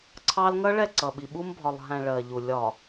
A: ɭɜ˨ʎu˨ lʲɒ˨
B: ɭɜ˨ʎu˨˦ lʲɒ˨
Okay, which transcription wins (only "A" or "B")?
A